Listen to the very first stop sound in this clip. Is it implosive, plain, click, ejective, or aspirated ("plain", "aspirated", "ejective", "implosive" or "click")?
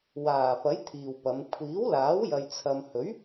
aspirated